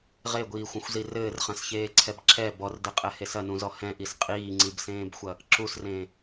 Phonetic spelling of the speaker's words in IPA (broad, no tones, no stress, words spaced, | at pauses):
ʁeɡʷiːxʷɐ̃xʷzi rɘːrχɐ̃sçeːǀʰɛb ǁɛ bɔrdɘqʼɛhes ɐnũzɔ hɛ̃ʔis qʼiːŋ͡ǀibsẽːbxʷɐ | ǁusrẽː